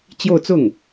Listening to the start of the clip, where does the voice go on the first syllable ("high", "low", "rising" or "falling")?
falling